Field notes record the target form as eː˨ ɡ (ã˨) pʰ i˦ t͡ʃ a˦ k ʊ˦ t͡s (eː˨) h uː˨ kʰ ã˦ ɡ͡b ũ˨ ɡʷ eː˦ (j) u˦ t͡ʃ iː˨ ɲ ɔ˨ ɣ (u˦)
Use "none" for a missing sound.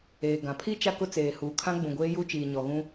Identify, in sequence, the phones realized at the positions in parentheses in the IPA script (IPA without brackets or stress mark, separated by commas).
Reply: ã˨, eː˨, j, ũ˦